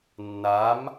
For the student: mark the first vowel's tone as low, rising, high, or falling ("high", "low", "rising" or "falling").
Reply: rising